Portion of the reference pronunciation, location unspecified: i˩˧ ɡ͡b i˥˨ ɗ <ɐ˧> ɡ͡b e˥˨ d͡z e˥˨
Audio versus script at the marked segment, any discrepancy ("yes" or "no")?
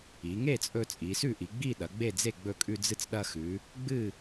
yes